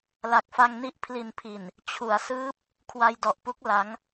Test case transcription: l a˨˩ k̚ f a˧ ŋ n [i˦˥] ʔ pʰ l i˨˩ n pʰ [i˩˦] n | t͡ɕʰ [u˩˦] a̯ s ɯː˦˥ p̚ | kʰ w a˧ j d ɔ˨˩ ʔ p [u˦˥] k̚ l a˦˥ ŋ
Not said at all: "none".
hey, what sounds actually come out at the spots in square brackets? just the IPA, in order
i˦˥, i˨˩, u˩˦, u˦˥

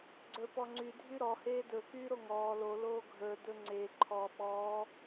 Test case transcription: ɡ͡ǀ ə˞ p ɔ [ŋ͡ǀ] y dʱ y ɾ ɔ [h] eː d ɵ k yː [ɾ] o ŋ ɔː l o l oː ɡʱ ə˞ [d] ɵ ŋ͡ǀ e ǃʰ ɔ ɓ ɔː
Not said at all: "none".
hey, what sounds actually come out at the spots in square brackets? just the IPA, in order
ŋ͡ǀ, h, ɾ, d

